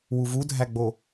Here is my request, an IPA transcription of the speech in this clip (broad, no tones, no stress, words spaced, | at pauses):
wuvudʱæɡ͡bo